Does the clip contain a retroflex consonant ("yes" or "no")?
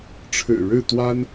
yes